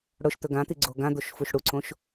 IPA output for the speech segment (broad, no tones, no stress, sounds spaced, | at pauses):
ɽ ʊ ʃ t̪ ɵ ɡ ã t̪ i ɡ͡ǀ o ɡ ã d̪ o ʃ f u ʃ ɽ u ǀ õ ʃ